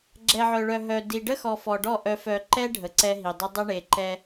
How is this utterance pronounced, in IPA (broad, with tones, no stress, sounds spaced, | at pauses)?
ɡ͡ǁ ɛ˨ ʕ œ˨ ɭ œ˨ ɦ œ˨ d i˨ ɖ ə˦ x ɔ˨ f ɔ˨ ɖ ɔ˦˨ ʔ œ˨ f œ˨ ǃ ɛ˦ ɖʱ ə˨ ǀ ɛ˦ ɦ i˨ dˤ ə˦ dˤ ə˦ ɳ e˨ ǃ ɛ˦